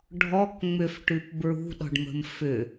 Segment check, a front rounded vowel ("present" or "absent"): present